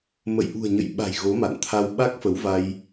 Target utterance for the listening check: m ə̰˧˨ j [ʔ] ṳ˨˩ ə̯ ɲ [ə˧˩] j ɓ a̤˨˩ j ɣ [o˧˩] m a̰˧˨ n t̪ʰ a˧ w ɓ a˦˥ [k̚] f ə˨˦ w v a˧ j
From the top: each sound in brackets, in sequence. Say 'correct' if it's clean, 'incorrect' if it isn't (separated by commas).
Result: correct, incorrect, incorrect, correct